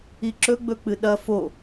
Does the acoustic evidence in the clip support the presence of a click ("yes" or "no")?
yes